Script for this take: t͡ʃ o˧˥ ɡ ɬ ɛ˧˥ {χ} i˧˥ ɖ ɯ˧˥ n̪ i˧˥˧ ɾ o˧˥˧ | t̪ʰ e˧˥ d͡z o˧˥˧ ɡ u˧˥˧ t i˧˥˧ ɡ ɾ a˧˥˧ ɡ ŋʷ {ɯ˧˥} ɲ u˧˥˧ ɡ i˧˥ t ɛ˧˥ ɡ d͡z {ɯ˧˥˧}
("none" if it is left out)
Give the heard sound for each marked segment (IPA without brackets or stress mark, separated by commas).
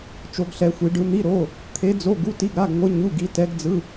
xʷ, ɯ˧˥, ɯ˧˥˧